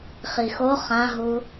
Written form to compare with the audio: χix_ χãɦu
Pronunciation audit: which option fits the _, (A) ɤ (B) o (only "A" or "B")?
B